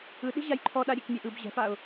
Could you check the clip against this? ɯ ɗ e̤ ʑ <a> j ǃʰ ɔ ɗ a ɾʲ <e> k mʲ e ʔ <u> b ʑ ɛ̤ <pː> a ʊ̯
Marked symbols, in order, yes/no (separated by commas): yes, yes, no, no